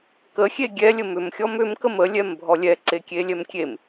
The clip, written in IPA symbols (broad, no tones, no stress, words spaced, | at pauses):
kəxʲe ɡʲɛlʲə mʏmxʲɔm ʏmkəm əlʲɛmbʱɔ lʲɛǀekʲelʲɛm kʲem